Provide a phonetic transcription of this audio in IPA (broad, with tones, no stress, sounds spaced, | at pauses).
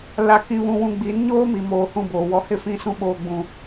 l a˨ k ĩ˨ β ũ˨ w ũ˨ ɡ͡b i˨˦ n ɲ oː˦ m i˨ m oː˨ h ũ˦˨ b oː˨ w ɔ˦ h ɪ˦ f ĩ˦ s ũ˦ ɓ oː˦ ɡ͡b ũ˦